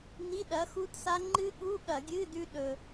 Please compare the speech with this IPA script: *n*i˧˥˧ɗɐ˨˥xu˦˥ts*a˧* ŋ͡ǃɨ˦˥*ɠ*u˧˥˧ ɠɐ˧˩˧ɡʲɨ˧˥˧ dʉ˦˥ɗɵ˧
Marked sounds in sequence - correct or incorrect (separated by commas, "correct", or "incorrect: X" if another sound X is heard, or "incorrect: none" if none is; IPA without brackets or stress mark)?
correct, incorrect: a˦˥, correct